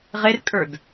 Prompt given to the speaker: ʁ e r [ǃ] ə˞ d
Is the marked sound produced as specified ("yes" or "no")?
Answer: no